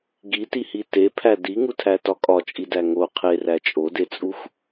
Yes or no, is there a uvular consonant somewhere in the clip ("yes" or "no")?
yes